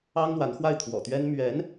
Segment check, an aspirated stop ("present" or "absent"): present